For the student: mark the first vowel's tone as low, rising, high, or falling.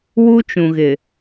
high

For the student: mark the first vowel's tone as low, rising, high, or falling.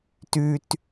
high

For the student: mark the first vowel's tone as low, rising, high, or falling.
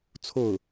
falling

